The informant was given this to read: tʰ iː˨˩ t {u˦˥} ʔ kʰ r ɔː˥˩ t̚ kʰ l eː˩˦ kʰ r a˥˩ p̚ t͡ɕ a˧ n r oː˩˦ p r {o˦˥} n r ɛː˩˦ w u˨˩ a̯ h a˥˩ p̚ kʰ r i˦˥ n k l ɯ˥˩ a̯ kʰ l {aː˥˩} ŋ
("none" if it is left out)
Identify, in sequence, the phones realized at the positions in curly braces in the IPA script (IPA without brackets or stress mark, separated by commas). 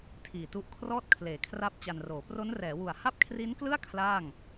u˦˥, o˦˥, aː˥˩